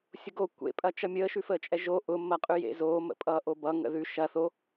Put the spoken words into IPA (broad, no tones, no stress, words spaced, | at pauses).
sʲʊɡo kʷḛpʼɐ t͡ʃʌmʲəːʃʉ fəːt͡ʃʼɛʒo ʔʊmːɐqʼʉ jḛzoː mə̰pʼʌːʔobʌ ŋə̰ðʉ ʃɐ θo